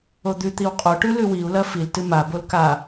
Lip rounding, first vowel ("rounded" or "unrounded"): rounded